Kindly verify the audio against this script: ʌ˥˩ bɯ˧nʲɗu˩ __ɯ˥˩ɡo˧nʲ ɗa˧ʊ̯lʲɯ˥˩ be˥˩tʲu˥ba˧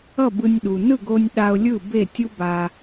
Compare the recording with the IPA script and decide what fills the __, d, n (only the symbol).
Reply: n